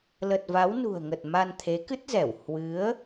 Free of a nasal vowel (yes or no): yes